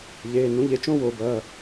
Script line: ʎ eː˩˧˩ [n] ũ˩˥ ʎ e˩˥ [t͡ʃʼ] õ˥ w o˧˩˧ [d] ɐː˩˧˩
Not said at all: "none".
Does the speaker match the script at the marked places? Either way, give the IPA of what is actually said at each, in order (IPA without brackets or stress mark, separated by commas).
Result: n, t͡ʃ, b